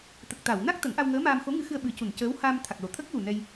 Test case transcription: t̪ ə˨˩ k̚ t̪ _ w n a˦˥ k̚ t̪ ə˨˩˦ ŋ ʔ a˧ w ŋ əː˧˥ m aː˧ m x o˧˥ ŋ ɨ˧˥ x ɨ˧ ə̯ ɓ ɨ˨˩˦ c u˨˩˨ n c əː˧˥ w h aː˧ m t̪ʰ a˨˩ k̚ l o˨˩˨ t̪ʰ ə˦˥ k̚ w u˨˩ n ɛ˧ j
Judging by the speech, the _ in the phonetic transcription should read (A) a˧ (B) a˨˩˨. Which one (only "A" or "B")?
B